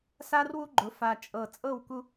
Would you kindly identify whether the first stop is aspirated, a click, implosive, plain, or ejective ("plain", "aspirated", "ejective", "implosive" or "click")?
click